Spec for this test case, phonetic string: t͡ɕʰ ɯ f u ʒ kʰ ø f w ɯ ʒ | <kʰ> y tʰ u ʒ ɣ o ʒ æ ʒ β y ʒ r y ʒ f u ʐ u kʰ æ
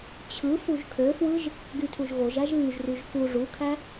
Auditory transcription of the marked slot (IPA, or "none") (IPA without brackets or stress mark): ɡ